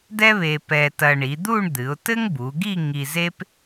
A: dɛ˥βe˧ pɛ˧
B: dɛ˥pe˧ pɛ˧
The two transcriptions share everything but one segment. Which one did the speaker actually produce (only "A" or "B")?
A